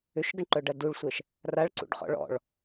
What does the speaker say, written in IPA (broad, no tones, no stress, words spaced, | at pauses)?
ʏʃɡəɳǃœɖɐ duɭsʷɛʃ | raɭǀṵɖχɔ̰ ɭɔ̰ɭ